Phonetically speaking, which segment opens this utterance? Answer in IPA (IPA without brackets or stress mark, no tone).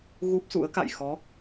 ɣ